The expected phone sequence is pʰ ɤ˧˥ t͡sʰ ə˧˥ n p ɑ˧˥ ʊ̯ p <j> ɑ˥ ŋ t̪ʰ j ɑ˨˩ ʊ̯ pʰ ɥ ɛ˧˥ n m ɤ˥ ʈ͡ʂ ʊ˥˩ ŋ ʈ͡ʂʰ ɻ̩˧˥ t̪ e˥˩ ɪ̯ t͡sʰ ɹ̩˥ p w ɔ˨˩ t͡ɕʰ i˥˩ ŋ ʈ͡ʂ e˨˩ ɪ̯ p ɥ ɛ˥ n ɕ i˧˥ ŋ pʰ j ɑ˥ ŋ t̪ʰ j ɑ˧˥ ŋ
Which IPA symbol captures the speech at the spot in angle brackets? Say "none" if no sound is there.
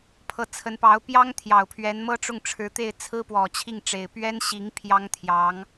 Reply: j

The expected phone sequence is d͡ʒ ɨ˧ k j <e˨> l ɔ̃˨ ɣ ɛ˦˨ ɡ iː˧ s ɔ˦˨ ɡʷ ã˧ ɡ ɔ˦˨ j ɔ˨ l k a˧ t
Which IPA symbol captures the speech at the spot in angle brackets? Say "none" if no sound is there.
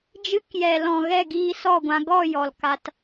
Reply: ɛ˨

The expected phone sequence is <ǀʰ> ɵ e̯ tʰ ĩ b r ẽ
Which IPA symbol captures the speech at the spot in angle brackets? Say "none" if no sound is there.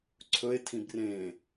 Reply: ǀʰ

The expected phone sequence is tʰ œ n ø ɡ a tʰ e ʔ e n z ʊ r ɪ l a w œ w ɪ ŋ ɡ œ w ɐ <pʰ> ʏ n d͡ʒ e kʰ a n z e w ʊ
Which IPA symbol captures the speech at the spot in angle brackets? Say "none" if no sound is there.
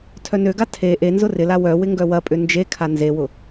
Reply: pʼ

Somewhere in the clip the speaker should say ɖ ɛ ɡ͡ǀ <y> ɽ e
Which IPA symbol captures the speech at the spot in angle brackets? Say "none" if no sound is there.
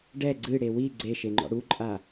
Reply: ɨ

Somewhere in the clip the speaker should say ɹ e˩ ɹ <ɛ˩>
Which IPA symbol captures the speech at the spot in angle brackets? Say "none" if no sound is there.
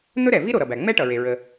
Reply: ə˩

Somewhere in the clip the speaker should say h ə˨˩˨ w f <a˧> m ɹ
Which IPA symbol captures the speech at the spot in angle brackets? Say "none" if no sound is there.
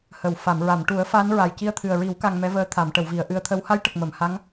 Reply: a˨˩˨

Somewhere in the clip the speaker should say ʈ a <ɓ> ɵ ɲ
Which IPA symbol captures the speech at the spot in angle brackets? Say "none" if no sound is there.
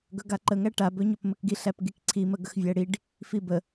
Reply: b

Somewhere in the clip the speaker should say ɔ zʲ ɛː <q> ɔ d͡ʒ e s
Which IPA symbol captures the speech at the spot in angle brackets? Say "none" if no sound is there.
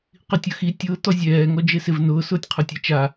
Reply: ŋ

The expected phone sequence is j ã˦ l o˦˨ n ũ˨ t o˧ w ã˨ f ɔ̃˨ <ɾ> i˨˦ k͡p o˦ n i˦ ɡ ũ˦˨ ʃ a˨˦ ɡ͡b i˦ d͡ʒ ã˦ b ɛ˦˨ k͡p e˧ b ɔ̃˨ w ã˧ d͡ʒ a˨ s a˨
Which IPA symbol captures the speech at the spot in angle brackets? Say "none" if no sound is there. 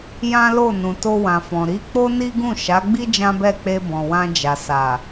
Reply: ɾ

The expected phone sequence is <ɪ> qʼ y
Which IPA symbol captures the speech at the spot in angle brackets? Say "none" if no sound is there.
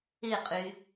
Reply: ɪ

